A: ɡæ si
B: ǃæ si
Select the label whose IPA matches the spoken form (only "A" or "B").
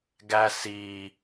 A